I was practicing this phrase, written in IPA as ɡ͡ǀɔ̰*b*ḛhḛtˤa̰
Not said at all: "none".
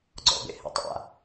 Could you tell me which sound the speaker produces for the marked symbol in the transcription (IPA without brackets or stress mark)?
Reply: b